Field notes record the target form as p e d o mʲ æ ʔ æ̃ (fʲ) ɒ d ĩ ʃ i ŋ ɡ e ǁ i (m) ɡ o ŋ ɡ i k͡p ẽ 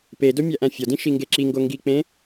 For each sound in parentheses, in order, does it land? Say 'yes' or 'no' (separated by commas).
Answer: yes, no